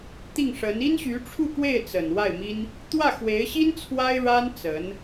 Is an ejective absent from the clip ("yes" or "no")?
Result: yes